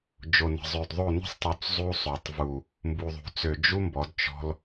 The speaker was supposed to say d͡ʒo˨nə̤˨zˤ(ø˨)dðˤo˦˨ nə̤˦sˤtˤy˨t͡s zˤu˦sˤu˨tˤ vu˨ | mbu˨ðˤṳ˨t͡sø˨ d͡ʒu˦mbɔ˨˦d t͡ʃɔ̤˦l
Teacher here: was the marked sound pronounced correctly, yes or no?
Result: yes